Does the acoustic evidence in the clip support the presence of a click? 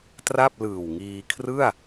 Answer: no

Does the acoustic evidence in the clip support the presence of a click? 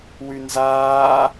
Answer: no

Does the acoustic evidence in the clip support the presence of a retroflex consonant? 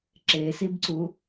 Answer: no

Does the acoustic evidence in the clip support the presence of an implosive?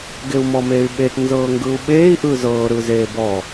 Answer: yes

